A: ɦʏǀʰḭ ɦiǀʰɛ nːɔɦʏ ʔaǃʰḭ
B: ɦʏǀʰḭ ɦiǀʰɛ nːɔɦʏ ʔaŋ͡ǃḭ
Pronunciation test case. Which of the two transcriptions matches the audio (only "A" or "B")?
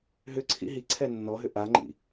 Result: B